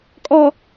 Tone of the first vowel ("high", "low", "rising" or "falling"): low